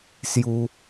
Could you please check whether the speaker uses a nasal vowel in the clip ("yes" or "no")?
no